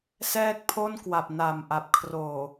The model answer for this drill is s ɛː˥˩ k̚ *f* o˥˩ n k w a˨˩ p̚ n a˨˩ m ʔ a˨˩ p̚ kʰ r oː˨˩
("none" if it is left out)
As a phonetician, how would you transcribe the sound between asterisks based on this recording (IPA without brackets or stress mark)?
pʰ